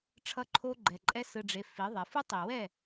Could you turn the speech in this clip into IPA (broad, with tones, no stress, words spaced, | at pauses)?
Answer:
ʈ͡ʂʰʌ˦ǃʰo˦ɡ͡ǃɛ˨ǃʼɛ˦ sɯ˨ɖ͡ʐe˨ fi˨˦ðˤɛ˨ fɯ˦tˤi˨wɛ˦˨